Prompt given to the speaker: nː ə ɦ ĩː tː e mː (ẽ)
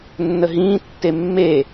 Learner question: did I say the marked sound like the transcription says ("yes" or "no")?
no